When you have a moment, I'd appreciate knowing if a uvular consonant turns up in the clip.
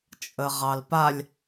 yes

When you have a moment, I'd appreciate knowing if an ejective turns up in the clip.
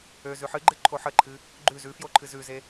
no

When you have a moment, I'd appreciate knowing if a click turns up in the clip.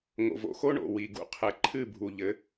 yes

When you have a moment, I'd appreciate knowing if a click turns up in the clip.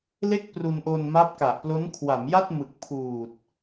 no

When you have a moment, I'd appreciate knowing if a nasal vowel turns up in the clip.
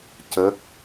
no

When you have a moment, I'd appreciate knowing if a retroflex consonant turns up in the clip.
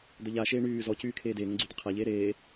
yes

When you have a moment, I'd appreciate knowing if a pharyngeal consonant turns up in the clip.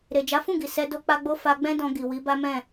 no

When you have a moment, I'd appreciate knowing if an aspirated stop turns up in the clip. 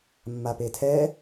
yes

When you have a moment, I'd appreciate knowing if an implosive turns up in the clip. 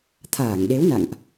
yes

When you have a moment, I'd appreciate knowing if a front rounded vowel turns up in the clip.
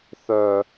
yes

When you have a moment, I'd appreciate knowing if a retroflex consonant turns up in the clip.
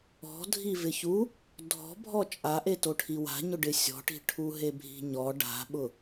yes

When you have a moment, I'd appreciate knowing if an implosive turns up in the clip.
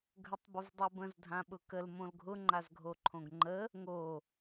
yes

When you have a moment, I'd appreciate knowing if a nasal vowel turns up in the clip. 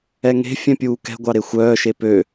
yes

